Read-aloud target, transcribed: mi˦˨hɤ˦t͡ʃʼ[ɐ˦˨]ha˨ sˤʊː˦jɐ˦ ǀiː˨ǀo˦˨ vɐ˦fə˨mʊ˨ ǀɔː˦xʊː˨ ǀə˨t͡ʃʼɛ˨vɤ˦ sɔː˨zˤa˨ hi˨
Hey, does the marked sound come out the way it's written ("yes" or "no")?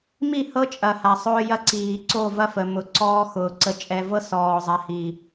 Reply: no